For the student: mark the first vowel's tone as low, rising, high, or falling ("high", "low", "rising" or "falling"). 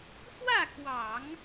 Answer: falling